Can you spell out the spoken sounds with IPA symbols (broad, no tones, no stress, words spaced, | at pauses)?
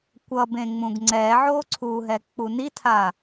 kʷʌbẽ ŋ͡mũɡŋ͡ǀɛʕo ǀʰuɦɛ k͡punitʰa